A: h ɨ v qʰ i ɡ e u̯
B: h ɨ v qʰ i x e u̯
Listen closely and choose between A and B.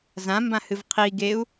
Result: A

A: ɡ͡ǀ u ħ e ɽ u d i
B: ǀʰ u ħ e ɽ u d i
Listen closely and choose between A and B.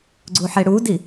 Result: A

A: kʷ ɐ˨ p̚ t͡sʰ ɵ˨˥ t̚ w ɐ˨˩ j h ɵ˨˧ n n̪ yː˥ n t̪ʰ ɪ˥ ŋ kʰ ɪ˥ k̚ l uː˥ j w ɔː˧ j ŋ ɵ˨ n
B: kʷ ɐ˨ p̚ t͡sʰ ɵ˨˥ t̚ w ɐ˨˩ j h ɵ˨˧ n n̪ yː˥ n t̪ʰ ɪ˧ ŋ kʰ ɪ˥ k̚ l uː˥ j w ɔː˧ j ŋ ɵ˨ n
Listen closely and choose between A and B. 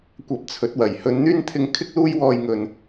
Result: B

